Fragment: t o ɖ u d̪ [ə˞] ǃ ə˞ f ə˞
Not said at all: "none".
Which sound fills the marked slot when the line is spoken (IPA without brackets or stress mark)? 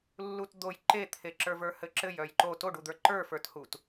ə˞